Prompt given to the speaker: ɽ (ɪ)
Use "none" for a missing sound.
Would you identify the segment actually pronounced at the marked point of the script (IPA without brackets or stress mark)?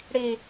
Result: i